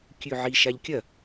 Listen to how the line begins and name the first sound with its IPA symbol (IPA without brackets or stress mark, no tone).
kʲ